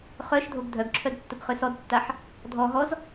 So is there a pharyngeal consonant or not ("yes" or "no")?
yes